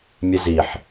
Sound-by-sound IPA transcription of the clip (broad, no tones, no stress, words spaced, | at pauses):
mʲɘziħ